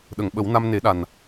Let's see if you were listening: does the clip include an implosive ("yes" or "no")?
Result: yes